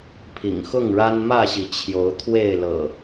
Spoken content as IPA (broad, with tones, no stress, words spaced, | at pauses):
pʰḭ˨˩ŋ xʊ˥˨ŋɻa˦n mä˥˨ɕi˨˦ t͡ɕʰjo˨˦ʊ̯t̪ʰwe˥˨ɪ̯ lɤ̰˨˩